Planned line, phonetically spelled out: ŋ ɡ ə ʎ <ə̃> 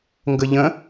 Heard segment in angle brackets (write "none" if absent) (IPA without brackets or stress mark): ə̃